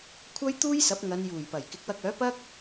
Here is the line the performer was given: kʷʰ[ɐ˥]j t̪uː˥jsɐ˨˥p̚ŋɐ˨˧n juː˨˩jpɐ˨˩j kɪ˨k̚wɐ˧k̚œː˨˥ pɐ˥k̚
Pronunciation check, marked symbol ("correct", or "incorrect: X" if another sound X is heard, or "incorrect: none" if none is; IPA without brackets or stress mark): correct